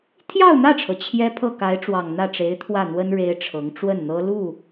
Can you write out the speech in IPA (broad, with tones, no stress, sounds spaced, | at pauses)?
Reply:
t̪ʰ j ɑ˥˧ ʊ̯ n̪ ä˥˩ ʈ͡ʂʰ ɤ˩ t͡ɕʰ j ɛ˥ pʰ ɤ˥˩ k a˧˥ ɪ̯ ʈ͡ʂ w ɑ˨˩ ŋ n̪ ä˥˩ ʈ͡ʂ e˧˥ ɪ̯ t̪ʰ w ä˥˩ n̪ w ə˥ n ɻ e˥ ɪ̯ ʈ͡ʂʰ ɤ˧˥ ŋ ʈ͡ʂ w ə˥˩ n n̪ ɤ˥ l u˥˩